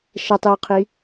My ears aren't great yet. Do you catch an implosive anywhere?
no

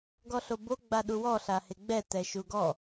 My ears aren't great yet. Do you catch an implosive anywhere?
yes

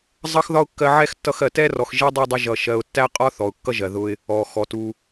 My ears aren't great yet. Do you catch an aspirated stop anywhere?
no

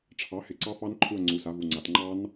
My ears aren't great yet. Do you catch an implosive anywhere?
no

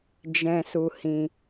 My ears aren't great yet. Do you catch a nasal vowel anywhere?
yes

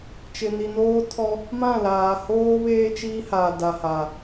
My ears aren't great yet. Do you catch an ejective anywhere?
no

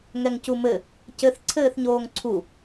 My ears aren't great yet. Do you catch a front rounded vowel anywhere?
no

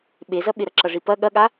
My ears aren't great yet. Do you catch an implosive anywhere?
yes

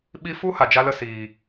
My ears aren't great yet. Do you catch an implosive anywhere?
yes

